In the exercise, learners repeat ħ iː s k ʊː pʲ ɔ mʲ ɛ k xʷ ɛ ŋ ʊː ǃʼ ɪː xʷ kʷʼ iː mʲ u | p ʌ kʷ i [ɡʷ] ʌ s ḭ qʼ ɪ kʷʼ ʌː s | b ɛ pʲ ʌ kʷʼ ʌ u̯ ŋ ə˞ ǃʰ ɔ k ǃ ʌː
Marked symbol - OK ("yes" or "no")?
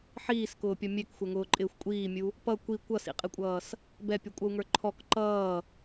no